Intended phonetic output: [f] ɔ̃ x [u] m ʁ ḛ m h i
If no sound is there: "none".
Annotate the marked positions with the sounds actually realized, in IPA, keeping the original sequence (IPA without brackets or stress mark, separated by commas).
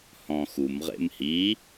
h, u